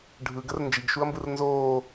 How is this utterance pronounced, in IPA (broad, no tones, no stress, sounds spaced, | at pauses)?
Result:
ɖʱ ɯ ɡ ə r n d͡ʒ i ɡ ʃ u ɐ̯ m b ɯ r n z oː